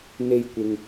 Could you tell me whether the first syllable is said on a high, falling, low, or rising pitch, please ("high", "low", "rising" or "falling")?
high